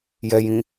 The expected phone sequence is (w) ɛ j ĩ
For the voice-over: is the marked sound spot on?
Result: no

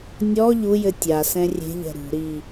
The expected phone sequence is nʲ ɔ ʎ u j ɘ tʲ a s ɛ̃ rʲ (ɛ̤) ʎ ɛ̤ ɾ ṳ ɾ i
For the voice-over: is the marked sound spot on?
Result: no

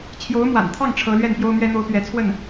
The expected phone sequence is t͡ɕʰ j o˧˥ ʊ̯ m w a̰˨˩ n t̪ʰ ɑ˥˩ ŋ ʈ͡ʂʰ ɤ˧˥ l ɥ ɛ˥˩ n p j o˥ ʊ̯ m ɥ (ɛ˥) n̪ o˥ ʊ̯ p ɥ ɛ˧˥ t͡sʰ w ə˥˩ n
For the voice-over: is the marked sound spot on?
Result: yes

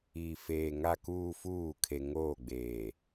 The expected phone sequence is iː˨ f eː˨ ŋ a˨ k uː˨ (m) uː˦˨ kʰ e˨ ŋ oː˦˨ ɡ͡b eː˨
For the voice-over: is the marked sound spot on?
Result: no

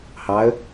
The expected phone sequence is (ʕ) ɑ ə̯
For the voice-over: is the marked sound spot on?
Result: no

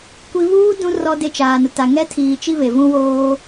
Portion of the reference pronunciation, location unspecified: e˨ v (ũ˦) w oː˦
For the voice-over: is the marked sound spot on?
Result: yes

